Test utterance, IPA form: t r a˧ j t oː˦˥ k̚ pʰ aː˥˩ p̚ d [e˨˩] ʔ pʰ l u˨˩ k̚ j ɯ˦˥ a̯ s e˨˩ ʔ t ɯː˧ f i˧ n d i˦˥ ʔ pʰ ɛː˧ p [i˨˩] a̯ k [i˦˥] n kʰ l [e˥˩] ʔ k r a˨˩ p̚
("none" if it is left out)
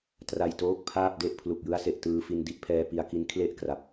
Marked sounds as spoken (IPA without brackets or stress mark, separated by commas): e˥˩, i˧, i˦˥, e˥˩